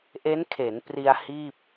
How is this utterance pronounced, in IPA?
ʔe˦˥nkʰe˩˦npri˧a̯ hiː˥˩p̚

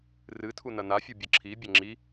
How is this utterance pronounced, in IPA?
rɨ tʰunɐnafʲu bʲɐǁʰibʲɐ ŋ͡ǁi

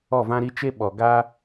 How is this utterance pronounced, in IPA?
ɔ˦˨vã˦ɾi˦ t͡ʃe˦ ɓɔ˨ɡa˦

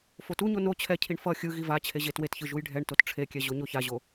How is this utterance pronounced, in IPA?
fotuɲo no t͡ɕʰɛcʰiɳ fʌ xʲɯ ɣivat͡ɕʰe ʑetwetçɯ ʒujɖʱɛɳtot ʈ͡ʂʰekʲɛ ʑoɲoçaʑo

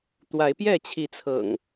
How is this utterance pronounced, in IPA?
t̪wa˨˦ɪ̯pjɛ˥˨t͡ɕʰi˨˦t͡sʰɤ̰˨˩ŋ

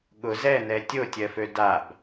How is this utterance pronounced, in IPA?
ɠʊ zɛnɛ tʲotʲɜfø dab

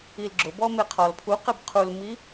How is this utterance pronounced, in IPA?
ilɡ͡ǁʊ bɔmeqʰɔl pʰu qebqʰulmi

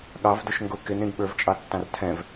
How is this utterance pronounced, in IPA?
ɠɑvdʊʃ ŋɡʊ kɪnɾĩɡ ɓə˞vt͡ʃʼɑtːɑ̃r tʰɛ̃v

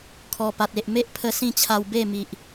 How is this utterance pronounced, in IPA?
kʰɔ˨˩pa˨t̚ e˨ʔ me˦ʔ pʰə˧ sĩ˥˧t͡ɕʰa˧w be˥˧mi˨ʔ

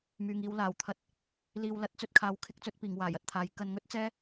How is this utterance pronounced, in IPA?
myː˨ŋiː˨˧w laː˨˩wt̪ʰɐ˧t̚ | liː˨wlɐ˨˥t̚ t͡sɵ˧t̚kʰaː˨˥wkʰɪ˨˥k̚ t͡sɵ˨˥t̚piː˨˩ŋ waː˨˩jɐ˨t̚t̪ʰaː˨˥j kɐ˧nŋɵ˥t̚t͡sɛː˥

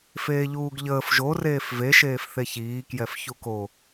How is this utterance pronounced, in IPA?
feːʎuːɡʎəːf ʒo reːfve ʃeːfθeçiː kjɛfçuko

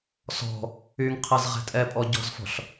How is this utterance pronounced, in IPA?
sɔ̤ | yŋqʰɛz ʁɛ̤tʼɛpʼɔ ɟɔ̤zfɔ̤ɬ

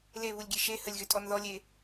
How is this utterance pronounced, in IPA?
leβulʲɡʲe ʃe həlʲɣø tʼɔnðɔlʲe

